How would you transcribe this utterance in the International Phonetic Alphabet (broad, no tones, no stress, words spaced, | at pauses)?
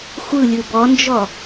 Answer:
xʷɯ lʲɯbɔnd͡ʒɔ